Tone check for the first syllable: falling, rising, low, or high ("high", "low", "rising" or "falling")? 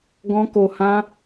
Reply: high